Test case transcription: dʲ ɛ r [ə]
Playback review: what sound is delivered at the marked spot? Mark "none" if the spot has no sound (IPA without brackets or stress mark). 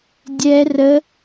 ə